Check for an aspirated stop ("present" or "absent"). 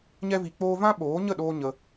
absent